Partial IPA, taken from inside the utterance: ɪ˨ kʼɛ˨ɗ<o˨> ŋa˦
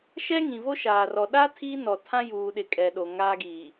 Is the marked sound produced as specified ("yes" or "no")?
yes